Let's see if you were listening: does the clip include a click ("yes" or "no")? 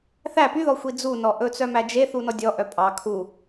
no